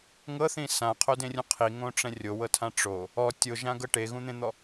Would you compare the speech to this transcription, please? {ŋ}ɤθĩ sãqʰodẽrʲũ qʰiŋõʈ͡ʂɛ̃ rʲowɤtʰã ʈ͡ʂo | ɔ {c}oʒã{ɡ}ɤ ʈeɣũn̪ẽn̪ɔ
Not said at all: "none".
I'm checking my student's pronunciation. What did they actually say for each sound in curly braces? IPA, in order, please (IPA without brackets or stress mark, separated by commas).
ŋ, tʲ, ɡ